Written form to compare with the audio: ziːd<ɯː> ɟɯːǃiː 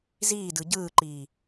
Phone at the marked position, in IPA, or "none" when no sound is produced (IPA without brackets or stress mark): ɯ